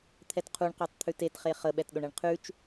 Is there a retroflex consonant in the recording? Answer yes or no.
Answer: yes